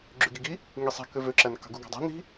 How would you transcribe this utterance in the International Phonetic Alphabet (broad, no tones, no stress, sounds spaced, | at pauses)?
ɡ͡ǁ y ɡ i ɡ i | ŋ i sˤ e̤ k ø v ø ǁ æ n k ɑ̤ ɡ u ɡ ɑ̤ dˤ i̤ n i̤